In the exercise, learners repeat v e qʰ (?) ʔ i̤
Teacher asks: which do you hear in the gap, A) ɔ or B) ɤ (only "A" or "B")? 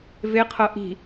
B